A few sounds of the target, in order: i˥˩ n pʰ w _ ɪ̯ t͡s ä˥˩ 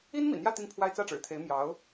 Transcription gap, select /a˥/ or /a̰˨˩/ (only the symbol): a˥